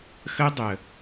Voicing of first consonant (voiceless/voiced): voiceless